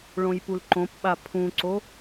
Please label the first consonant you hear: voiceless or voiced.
voiced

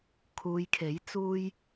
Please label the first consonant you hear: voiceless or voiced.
voiceless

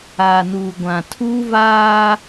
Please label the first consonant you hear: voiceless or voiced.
voiced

